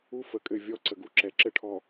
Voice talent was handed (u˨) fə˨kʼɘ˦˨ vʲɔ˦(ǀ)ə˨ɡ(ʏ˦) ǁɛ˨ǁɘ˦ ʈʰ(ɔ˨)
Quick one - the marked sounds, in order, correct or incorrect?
incorrect, correct, incorrect, correct

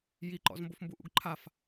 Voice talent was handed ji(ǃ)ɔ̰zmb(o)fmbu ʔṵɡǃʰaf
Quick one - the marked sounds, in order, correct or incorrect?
correct, correct

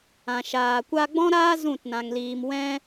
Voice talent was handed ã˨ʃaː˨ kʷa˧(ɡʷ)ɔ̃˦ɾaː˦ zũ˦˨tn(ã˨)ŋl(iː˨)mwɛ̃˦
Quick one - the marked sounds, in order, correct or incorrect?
incorrect, correct, correct

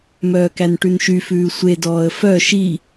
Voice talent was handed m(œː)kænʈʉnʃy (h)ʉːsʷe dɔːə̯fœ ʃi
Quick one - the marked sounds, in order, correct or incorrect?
correct, incorrect

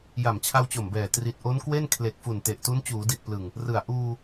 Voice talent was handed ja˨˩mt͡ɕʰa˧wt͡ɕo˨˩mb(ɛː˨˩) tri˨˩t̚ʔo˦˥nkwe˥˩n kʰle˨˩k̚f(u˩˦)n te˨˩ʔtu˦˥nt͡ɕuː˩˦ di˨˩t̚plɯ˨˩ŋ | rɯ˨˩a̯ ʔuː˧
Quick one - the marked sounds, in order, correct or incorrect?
correct, incorrect

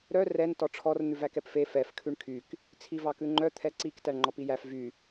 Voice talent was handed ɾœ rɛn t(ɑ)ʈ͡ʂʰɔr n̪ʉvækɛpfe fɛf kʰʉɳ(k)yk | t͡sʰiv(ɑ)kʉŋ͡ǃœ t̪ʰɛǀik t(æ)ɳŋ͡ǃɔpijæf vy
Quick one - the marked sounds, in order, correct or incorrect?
incorrect, incorrect, correct, correct

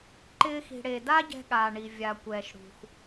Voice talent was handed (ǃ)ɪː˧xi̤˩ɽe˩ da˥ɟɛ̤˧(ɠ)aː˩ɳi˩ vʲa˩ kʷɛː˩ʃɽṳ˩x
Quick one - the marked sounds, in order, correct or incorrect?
correct, correct

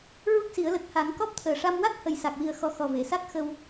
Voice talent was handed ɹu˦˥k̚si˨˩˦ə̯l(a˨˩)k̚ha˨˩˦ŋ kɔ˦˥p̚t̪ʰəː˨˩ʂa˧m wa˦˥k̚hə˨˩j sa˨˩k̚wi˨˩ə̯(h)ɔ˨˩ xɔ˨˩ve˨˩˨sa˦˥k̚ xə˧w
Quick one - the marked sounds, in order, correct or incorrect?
incorrect, incorrect

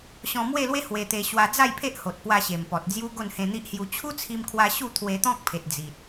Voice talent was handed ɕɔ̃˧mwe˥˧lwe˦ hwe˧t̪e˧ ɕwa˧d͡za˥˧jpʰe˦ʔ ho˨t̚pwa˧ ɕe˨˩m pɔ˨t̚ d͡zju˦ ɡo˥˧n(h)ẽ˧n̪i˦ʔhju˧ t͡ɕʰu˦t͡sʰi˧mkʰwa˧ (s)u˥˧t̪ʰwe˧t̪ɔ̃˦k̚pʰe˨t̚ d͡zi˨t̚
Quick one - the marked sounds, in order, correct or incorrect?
correct, incorrect

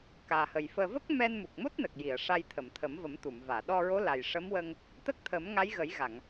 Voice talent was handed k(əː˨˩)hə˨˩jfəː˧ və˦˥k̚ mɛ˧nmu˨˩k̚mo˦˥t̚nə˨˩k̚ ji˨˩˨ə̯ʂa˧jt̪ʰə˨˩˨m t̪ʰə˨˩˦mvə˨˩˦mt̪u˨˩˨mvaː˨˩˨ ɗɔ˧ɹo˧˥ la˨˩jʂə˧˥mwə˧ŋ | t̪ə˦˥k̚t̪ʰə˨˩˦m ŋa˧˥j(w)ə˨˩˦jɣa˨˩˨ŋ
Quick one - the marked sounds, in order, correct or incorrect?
incorrect, incorrect

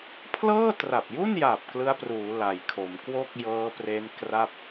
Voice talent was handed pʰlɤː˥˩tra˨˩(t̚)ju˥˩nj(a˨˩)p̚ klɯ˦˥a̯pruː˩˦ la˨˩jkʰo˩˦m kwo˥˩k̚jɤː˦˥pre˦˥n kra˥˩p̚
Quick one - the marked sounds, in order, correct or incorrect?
incorrect, correct

